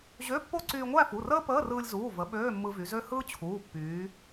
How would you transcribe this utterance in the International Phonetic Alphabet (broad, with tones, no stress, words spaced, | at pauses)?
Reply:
ʑø˧˥˧pːo˥˧ ǀyː˧ŋʷæ˥˧fu˩˧˩rəː˥ pəː˧˥˧rɯː˧lʲzuː˩˧˩və˩˧ ɓøː˧˥˧mːɯ˧vy˩˧zø˥ hɯː˥t͡ɕʰuː˩˧˩pːyː˩˧